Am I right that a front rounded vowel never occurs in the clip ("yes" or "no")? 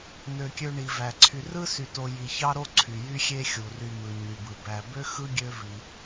no